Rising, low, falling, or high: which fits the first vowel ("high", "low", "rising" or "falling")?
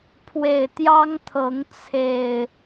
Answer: low